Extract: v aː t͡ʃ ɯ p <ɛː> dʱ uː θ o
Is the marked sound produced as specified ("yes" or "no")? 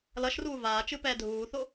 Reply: yes